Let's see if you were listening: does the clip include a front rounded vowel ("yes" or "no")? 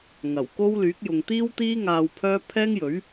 yes